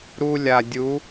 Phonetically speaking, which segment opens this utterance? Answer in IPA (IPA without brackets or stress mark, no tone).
ɾ